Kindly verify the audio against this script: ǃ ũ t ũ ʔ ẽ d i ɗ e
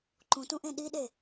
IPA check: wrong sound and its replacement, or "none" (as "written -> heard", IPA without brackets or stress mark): d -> ɗ